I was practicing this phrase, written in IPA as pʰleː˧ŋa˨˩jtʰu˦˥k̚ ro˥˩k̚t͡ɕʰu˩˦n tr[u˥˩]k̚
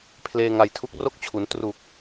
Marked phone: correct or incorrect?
incorrect